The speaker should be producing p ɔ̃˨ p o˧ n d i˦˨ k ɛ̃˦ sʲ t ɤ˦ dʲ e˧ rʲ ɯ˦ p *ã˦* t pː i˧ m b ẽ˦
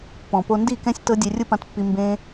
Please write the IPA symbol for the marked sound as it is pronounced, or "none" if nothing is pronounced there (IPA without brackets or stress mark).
ã˧